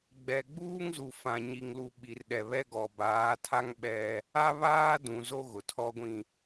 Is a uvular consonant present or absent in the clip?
absent